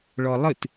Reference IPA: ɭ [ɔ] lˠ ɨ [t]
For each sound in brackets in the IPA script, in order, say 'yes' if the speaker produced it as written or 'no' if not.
yes, yes

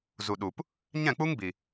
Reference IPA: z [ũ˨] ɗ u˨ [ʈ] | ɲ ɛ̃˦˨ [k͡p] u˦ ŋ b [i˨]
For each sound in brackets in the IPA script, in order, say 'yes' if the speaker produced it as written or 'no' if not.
no, no, yes, yes

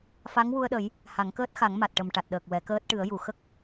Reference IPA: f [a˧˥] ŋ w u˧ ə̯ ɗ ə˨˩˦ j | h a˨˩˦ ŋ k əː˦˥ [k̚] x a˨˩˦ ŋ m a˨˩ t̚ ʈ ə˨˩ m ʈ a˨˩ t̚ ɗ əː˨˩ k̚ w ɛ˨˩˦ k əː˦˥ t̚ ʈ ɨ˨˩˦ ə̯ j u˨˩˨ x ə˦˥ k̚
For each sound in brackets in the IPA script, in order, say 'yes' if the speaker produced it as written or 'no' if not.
yes, no

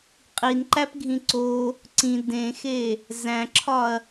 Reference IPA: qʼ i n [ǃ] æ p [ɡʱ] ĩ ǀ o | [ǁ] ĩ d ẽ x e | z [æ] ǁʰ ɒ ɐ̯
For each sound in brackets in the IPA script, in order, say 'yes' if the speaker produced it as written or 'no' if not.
yes, yes, no, no

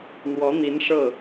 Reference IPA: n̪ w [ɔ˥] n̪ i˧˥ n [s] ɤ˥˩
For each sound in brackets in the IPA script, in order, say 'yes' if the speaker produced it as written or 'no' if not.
no, no

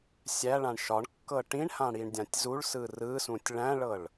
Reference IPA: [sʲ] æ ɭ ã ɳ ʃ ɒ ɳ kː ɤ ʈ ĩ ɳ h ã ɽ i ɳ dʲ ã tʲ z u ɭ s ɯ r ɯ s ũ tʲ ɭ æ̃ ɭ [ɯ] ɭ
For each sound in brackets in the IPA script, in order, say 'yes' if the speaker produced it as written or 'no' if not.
yes, no

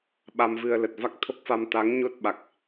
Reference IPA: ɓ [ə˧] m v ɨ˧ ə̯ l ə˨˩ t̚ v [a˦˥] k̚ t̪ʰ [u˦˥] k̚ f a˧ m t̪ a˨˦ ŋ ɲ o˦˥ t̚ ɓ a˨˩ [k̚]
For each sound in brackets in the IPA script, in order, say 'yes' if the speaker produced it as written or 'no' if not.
no, yes, no, yes

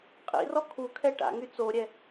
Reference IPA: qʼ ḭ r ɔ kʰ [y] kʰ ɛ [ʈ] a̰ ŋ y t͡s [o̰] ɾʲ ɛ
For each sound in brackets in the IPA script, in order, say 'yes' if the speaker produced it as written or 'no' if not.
no, yes, no

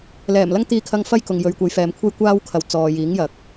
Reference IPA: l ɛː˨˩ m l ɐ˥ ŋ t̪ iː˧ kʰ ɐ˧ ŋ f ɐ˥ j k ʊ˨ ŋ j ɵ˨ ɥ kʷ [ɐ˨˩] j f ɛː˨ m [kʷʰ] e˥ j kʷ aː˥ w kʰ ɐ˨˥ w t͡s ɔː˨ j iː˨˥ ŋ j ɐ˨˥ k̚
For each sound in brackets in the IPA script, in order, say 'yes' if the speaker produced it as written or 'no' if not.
no, yes

